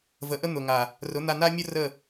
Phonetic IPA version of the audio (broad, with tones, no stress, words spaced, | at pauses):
və˨˦ʔə˦n̪ʊ˨ŋa˨ | rʊ˨˦n̪a˧na˦mʲʊ˦ rə˦˨